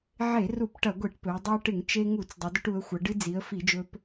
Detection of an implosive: absent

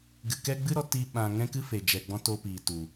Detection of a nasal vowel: present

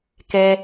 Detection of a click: absent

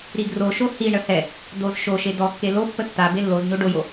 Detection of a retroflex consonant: present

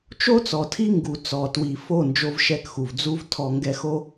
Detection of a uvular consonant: absent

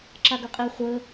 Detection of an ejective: present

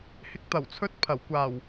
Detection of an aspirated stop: present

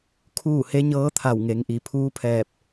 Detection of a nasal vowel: absent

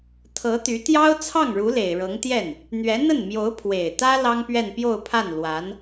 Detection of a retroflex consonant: present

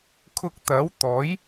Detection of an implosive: absent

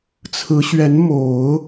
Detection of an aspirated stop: present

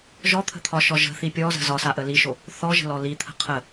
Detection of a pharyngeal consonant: absent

